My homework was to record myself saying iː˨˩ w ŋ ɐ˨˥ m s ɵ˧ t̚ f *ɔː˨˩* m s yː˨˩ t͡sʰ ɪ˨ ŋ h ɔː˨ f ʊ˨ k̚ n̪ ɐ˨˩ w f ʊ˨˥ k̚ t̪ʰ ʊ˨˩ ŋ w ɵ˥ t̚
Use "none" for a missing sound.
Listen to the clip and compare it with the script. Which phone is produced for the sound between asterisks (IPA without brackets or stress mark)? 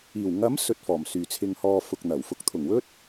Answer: ɔː˨˩